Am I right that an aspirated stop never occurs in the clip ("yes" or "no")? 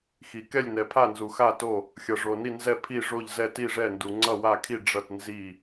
no